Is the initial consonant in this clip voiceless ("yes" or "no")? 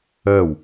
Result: no